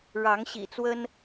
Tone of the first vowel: rising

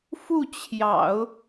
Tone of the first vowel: falling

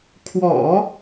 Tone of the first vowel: low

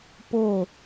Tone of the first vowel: falling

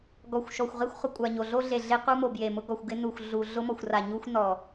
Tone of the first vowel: low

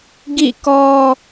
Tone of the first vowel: falling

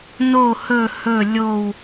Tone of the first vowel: falling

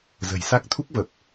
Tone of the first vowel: low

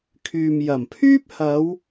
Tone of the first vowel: low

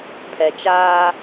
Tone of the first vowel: low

